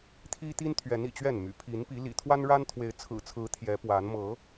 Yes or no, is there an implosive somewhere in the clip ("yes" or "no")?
no